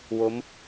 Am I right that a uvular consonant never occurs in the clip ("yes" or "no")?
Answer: yes